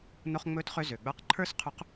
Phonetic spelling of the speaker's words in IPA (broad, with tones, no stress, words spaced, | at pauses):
no˧χŋ͡mɵ˧˥tχø˧ zø˩ɡ͡bə˞˧qǃʰə˞˥s qʰu˧˥q